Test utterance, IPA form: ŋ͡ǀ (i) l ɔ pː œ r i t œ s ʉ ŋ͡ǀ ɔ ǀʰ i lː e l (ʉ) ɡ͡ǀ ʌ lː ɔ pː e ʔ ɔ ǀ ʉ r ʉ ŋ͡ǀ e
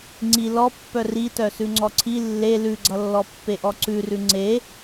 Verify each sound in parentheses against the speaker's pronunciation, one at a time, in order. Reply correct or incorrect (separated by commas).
correct, correct